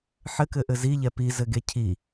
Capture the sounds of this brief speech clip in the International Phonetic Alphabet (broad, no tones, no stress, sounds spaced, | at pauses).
ħ ɘ k ɘ ʔ ɘ z i ʎ ɛ p i z ɘ ɡ e cʰ i